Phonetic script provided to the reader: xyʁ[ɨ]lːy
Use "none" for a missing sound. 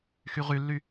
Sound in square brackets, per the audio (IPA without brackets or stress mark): y